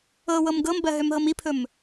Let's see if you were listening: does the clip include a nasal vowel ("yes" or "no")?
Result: no